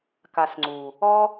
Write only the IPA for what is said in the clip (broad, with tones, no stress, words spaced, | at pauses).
ka˨s ŋ͡ǀu˨ | ɔ˦